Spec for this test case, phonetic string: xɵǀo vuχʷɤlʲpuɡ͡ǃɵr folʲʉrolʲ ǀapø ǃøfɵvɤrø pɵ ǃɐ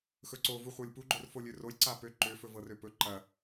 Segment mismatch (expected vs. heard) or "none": ʉ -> ø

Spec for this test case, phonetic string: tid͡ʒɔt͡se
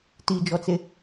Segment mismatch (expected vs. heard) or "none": none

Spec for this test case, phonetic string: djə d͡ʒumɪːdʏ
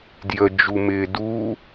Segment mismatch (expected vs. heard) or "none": ʏ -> u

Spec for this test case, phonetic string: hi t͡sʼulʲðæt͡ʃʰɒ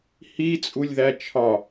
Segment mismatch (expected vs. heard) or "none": none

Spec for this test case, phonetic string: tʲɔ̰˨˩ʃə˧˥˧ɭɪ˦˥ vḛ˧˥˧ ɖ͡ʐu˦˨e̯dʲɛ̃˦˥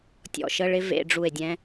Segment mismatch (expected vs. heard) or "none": none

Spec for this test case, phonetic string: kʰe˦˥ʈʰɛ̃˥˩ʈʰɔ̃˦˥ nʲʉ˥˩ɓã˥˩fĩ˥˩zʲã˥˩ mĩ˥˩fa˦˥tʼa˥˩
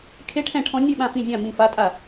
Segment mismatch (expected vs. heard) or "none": none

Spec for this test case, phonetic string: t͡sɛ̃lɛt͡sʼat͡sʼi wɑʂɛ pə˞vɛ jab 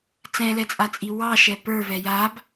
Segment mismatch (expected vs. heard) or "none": ʂ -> ʃ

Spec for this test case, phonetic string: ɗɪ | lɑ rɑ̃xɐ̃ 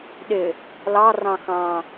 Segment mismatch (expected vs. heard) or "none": ɐ̃ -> ɑ̃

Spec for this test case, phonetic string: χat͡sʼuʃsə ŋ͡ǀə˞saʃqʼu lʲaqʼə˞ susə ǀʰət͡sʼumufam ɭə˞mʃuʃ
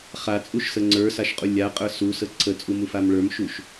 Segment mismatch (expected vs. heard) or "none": none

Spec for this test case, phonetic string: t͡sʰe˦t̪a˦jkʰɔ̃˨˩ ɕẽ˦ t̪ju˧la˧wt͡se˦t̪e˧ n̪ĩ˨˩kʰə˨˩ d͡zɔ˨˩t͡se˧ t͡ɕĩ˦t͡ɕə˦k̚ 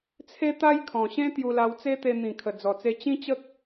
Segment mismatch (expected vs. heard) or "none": none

